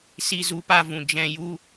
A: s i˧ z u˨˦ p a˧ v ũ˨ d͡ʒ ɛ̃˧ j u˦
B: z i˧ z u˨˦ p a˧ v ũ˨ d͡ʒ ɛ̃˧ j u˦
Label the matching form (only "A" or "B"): A